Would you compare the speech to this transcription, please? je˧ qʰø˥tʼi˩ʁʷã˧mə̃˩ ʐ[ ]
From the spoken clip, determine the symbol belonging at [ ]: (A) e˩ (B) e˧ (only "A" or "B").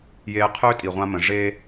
B